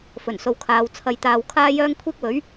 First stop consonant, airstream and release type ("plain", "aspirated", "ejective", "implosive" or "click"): aspirated